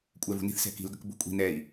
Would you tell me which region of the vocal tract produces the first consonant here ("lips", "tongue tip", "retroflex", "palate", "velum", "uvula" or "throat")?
velum